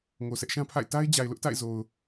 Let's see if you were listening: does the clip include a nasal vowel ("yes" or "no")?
yes